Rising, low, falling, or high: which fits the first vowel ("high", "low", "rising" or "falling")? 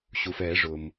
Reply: low